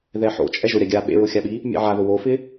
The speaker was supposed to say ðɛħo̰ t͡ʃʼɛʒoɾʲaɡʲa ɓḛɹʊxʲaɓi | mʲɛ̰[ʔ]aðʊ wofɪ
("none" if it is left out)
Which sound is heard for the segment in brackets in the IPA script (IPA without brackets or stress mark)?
ʕ